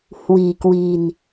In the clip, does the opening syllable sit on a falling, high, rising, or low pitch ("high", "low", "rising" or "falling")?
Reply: low